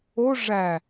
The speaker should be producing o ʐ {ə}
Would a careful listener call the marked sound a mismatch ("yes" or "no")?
yes